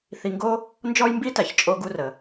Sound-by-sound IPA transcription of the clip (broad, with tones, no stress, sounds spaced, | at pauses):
θ i˧ ŋ ɡ o˥ | n d͡ʒ ɔ˥ j m b i˥ t æ˩ ç t͡ʃʼ o˧ ɡ u˧ r ə˩